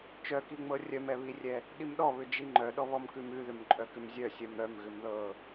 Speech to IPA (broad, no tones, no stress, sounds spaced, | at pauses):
t͡ʃ œ k i ŋ͡m ɤ rʲ œ m ɛ β i rʲ ɛ | ɗ i m ɗ ɔ β ʏ d͡ʒ i ŋ͡ǃ œ ɗ ɔ β ɔ m k ʉ m ʉ ð ʏ m ǃʼ œ k ʏ m zʲ œ sʲ œ m ɾ œ m ɣ ʏ m ð ɤ